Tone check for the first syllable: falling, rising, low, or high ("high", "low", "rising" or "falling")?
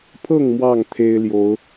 falling